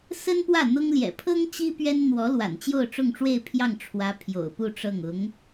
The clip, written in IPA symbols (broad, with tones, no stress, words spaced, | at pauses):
sə˥npwä˥˩ n̪ʊ˥ŋ ljɛ̰˨˩pʰɤ˥ŋ t͡ɕi˥pɥɛ˥n n̪wɔ˧˥lwa̰˨˩n t͡ɕjo˥˧ʊ̯ʈ͡ʂʊ˥˧ŋʈ͡ʂwe˥˧ɪ̯ pʰjɑ˥˩ŋʈ͡ʂʰwä˧˥ pʰjo̰˨˩ʊ̯pu˥˧ʈ͡ʂɤ˥˩ŋ ʊ˧˥ŋ